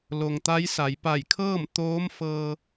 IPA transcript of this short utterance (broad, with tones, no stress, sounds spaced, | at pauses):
l o˩ ŋ t̪ a˧˥ j s a˩˧ j p a˧˩ j kʰ ɤː˥˨ m t̪ oː˧˥ m f ɤː˧